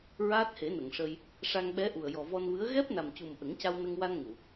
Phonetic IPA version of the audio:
ɹaː˦˥t̚he˨˩˦nə˨˩˨ŋʂə˧j | ʂa˧ŋɓɛ˧˥ʔu˨˩ə̯ jɔ˨˩vɔ˧nvɨ˧˥ə̯ ɣɛ˦˥p̚na˨˩mcu˨˩m ʔə˨˩˦ŋca˧wnə˧ŋwa˧n ŋu˨˩˨

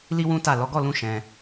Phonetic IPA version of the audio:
li˦wũ˦ ta˦˨ lɔ˨˦ɡɔ˦˨lũ˧ ʃɛ̃˧

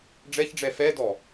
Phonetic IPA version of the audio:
ɖ͡ʐɛçɖ͡ʐɛ fɛdɔ

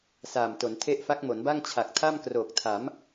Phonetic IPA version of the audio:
saː˨˩mto˩˦ntʰe˥˩ʔ fa˦˥k̚mo˩˦nba˥˩ŋ t͡ɕʰa˨˩k̚tʰa˥˩mkroː˨˩k̚tʰa˩˦m

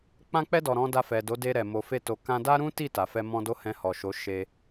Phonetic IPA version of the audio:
k͡pã˧k͡pɛ˧dɔ˨ ɾɔ̃˨˦da˧ fɛ˨do˨˦de˧ɾɛ˨ mo˨fe˧to˨ kã˧ da˦ɾũ˦ti˦˨ ta˨fɛ˧ mɔ̃˦do˦ hɛ̃˧hɔ˨ʃo˨˦ ʃe˧

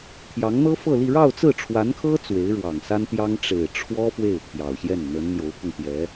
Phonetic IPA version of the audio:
t̪ʰjɑ˧˥ŋn̪ɤ˥fɤ˥˧li˥˧ ɻɑ˥˧ʊ̯t͡sɹ̩˥˩ʈ͡ʂʰwa˧˥nkʰɤ˥ t͡swe˧˥ɪ̯ɻwɑ˨˩ŋsa˥nt̪jɑ˥ŋ ʈ͡ʂe˨˩ɪ̯ʈ͡ʂʰwɔ˥ fwe˥˩ɪ̯t̪ʰjɑ˨˩ʊ̯ɕjɛ˥˩n n̪ə˧˥nn̪jo˧˥ʊ̯pʰʊ˧ŋ t̪jɛ˧˥

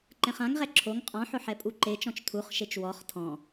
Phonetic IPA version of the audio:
ǃɛ̃χãŋʁɛ ǁʰoŋ qʼɔ̃ħʊ ħɛpʼuǃet͡ʃɔ̃t͡ʃ tʰuχʃet͡ʃ wɔχ tʰɔ̃

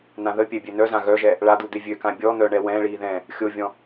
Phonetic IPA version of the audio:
nãðəpʲɛ bʲønœzã ɣœʒɛ | ɭad̪u d̪evʲøkã bʲɔ n̪œ ɳɛwɛ̃ːɭiː ðɛ̃ | xʲovʲɔ̃

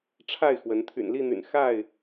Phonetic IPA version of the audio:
ʈ͡ʂʰa˥˨ɪ̯xwə˨˦n t̪ʰy̰˨˩nli˥˨n̪y̰˨˩n xa˥˨ɪ̯

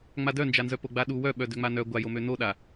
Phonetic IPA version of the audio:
ŋ͡madœnd͡ʒanzœ poɡ͡baɗu wœɓœ døŋ͡manœ ɡʷajomø noɗa

